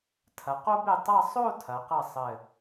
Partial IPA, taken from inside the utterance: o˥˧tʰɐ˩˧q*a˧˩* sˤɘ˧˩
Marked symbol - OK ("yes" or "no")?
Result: no